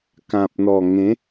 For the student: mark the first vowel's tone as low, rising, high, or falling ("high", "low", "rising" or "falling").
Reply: low